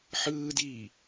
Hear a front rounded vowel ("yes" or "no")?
no